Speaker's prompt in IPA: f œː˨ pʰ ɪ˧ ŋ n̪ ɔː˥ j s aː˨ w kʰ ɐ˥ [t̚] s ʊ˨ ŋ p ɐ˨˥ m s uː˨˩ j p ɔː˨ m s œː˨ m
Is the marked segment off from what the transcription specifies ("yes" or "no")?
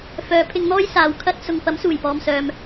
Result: no